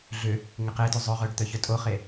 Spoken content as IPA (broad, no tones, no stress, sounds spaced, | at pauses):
ɮ ʏ | ŋ ɪ q e t ʏ zˤ œ ʁ œ ɖ t̪ œ ç œ tʼ o χ e